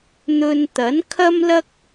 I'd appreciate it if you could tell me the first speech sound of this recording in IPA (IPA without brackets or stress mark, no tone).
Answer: n̪